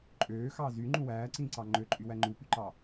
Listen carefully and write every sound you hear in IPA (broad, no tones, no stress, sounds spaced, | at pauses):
ǃʼ øː x ɑː z y ŋ͡ǃ ũ w æː ǀ ĩː ǀ ɑ ŋ͡ǃ ø ǃʼ y w æ ŋ͡ǃ u p y ǃ ɑ